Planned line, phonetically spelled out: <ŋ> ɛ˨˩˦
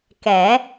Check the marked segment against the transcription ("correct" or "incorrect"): incorrect